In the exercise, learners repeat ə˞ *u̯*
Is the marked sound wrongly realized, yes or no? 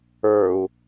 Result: no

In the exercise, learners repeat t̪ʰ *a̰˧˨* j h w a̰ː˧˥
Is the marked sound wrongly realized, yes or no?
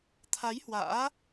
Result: yes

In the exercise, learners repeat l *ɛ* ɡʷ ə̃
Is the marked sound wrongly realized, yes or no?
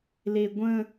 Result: yes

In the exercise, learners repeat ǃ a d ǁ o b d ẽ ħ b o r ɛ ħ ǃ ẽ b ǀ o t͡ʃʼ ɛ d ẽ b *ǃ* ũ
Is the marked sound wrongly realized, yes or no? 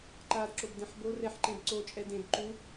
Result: no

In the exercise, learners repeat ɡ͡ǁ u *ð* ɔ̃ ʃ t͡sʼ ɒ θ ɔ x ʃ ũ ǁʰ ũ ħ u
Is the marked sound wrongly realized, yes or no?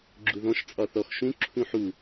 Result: no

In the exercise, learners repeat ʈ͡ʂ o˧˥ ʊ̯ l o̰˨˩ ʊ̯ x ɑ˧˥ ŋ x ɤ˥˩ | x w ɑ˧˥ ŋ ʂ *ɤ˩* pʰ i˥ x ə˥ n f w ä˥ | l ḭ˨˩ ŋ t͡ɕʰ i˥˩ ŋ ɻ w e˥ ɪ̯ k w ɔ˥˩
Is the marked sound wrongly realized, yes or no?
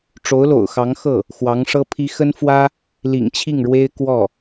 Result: yes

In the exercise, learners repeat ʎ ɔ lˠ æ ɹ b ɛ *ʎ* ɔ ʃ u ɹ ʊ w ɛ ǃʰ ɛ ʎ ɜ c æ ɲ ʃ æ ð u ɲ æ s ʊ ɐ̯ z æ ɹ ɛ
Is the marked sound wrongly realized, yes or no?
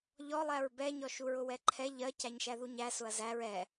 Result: yes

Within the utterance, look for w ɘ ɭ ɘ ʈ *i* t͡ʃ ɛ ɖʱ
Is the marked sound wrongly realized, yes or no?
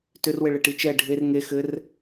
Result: no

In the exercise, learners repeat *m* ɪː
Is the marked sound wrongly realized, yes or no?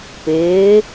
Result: yes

